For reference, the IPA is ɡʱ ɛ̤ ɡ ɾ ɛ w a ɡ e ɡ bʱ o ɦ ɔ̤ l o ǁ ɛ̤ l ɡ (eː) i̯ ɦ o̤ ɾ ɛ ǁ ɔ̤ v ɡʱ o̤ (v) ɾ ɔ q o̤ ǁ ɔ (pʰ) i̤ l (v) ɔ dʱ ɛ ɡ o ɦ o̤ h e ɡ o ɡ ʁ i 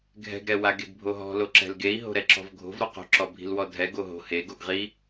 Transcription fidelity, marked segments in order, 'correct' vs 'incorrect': incorrect: e, correct, incorrect: bʱ, incorrect: w

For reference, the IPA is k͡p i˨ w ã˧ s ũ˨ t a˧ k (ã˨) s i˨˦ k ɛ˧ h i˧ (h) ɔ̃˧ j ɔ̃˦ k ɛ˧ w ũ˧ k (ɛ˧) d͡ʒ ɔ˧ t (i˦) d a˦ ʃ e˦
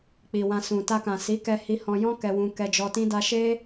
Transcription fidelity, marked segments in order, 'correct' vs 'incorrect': correct, correct, correct, incorrect: ĩ˦

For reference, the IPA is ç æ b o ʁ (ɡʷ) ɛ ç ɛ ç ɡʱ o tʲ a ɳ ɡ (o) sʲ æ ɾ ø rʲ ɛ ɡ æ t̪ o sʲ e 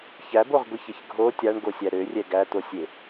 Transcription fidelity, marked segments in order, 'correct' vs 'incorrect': correct, correct

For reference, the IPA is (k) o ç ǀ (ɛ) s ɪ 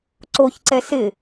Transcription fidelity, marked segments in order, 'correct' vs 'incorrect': incorrect: ǀ, correct

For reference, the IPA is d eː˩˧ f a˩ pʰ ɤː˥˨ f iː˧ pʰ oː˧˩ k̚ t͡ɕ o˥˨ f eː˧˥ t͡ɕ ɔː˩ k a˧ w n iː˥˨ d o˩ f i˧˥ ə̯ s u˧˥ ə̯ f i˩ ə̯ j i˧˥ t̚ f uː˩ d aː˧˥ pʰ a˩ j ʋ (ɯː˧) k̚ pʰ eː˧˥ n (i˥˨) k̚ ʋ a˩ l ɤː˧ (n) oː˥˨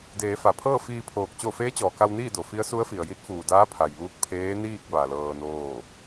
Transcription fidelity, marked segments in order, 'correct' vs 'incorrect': incorrect: uː˧, incorrect: iː˥˨, correct

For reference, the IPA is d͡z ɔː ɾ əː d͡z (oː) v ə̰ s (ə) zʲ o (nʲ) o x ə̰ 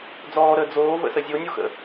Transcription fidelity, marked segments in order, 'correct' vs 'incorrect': correct, correct, correct

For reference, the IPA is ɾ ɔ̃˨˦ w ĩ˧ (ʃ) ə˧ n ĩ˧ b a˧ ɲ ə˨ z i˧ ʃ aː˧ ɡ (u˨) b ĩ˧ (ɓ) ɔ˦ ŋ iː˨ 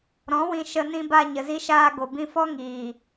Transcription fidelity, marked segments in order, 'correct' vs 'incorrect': correct, incorrect: o˨, incorrect: f

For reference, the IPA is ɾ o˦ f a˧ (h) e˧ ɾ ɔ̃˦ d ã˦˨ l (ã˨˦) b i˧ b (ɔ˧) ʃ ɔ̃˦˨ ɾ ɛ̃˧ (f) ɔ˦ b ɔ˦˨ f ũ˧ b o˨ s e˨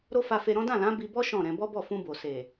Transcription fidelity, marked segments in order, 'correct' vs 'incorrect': incorrect: f, correct, incorrect: ɔ˦, incorrect: b

